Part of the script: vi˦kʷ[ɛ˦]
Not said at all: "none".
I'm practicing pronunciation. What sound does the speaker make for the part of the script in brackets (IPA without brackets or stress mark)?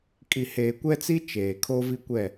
ɛ˦˨